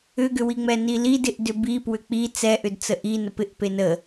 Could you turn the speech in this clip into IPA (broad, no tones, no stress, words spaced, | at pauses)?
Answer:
ʏɡʏwiŋ͡mɛ nilidɪʔ dʏbipwʏ k͡pi t͡sɛʔʏdt͡sə ʔi nəpɪʔ penə